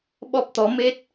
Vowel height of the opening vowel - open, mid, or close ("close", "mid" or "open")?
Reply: mid